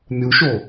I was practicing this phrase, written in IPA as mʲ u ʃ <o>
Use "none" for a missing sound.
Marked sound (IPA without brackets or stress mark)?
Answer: o